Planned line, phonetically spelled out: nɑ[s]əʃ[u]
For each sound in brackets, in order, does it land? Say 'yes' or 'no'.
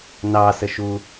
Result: yes, yes

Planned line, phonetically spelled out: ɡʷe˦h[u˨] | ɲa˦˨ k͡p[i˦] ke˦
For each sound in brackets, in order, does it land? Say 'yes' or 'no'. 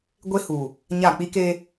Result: yes, yes

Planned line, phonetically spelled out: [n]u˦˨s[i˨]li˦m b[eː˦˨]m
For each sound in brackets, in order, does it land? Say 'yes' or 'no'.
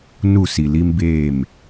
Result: yes, yes, yes

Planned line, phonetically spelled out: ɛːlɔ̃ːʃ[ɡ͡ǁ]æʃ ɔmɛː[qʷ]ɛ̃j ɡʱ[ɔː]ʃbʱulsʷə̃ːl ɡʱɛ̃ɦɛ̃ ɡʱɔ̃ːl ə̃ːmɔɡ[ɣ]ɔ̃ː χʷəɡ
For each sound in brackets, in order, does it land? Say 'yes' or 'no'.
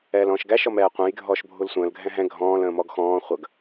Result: no, yes, yes, no

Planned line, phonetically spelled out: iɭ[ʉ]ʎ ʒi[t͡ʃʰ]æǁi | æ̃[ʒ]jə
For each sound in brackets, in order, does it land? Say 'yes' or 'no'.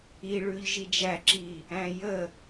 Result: yes, no, no

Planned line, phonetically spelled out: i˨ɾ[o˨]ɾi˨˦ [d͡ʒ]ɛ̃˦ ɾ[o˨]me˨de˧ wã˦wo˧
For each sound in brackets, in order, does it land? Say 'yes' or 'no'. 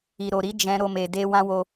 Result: yes, yes, no

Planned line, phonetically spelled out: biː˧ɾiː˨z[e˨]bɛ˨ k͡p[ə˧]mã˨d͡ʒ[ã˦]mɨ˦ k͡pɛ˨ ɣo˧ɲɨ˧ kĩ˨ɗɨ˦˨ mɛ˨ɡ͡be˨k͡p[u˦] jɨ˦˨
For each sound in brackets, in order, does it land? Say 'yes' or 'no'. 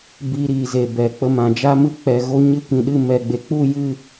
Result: yes, yes, no, no

